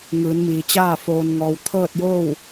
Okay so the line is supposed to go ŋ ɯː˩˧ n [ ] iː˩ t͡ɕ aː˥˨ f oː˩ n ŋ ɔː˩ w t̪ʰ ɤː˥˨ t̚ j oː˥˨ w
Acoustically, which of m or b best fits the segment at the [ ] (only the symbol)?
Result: m